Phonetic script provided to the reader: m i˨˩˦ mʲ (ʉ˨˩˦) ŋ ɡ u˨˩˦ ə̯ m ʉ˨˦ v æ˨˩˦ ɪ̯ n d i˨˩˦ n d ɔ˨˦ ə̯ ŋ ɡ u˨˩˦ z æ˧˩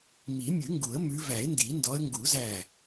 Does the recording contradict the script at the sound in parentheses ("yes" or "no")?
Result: no